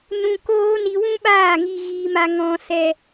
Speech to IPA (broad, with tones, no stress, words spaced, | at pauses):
nũ˧koː˦ ni˧wũ˦ɓaː˦˨ ŋi˧ɣiː˧ ma˧ŋɔ̃˧sɛ˧